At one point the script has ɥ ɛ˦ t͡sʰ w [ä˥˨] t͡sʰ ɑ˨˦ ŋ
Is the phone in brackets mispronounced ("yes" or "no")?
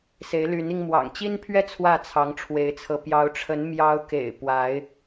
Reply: no